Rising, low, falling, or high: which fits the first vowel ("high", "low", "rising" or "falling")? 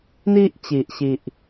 high